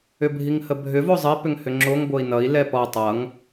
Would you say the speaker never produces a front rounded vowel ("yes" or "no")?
no